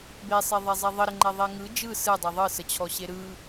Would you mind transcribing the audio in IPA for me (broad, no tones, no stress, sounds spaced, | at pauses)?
b e sˤ e ðˤ e zˤ ɛ ðˤ ə ɾ ə ŋ͡ǃ ɛ ðˤ e ŋ ɯ d͡ʒ ɯ s ɯ dˤ ɛ ðˤ ɯ s ə t͡ɕʰ ɔ ɕ e ɾ ɯ